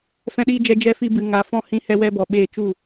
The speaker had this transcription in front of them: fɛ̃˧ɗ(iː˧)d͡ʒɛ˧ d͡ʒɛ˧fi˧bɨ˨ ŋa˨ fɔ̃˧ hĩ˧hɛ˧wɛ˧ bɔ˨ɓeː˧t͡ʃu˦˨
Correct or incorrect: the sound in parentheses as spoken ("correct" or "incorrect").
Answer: correct